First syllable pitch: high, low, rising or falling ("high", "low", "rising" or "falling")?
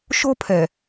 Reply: high